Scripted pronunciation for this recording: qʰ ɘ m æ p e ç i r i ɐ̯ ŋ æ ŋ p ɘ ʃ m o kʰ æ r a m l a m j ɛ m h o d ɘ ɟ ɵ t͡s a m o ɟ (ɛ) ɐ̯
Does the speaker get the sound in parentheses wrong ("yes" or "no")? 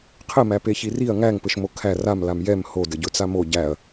yes